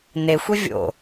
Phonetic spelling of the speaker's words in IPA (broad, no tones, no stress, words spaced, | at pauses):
nexʷi vʲo̰